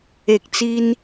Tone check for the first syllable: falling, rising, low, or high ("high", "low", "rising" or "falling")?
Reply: low